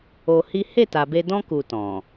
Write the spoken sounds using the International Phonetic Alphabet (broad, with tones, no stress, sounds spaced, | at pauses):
o˧ h i˦ h e˦˨ t a˨ b e˧ d ɔ̃˦ k u˧ t ɔ̃˨